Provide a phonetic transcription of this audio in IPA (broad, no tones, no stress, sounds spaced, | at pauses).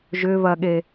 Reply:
ʒ ʏ β ɐ ɠ e